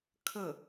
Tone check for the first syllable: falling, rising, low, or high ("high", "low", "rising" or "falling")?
falling